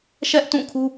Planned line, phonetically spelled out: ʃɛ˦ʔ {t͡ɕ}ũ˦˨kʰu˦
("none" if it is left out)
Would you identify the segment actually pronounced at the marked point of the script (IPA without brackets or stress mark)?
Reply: t